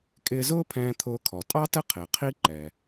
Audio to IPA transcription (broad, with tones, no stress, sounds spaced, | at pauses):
kʼ ɪː˧ z ʊː˥ pʰ ɛ̃ː˧ t̪ʰ ʊː˧ kʰ ɔ˩ tʼ ɑ˥ t ə˥ qʰ ɪː˩ qʰ i˥ ǃ ɛ˩